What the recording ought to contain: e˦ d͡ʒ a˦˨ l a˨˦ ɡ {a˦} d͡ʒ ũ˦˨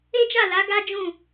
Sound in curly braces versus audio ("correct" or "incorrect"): correct